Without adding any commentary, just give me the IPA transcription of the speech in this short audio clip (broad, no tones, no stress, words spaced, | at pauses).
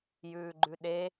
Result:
jʉːɡ͡ǃʉɗe